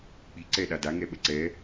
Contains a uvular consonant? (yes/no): no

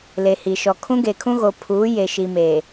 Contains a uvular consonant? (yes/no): no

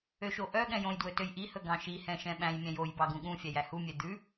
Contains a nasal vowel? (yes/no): yes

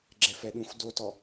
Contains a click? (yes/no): yes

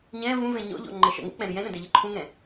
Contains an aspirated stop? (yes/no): yes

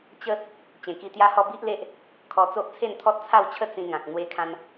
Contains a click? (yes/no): no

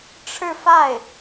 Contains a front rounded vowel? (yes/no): no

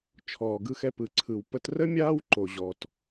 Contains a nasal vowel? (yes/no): no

